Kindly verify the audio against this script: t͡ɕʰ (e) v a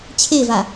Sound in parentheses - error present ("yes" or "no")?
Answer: no